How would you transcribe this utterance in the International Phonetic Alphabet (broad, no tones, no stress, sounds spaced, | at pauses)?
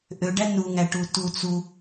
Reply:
ʔ ø ɖ æ n u ŋ æ ʈ u t u t͡s u